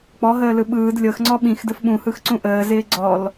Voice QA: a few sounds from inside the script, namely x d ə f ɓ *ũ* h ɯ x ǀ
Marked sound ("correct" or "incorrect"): correct